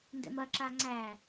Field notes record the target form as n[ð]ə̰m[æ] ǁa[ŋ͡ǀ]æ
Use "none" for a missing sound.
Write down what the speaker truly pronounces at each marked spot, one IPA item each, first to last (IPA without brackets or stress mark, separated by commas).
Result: d, ɐ, ŋ͡ǀ